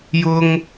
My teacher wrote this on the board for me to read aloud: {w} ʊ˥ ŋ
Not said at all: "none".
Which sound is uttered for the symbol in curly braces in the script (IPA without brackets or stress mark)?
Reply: j